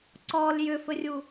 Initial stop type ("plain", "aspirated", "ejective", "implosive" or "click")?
click